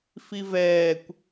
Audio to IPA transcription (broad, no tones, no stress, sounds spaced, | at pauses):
f i v ɛː kʷ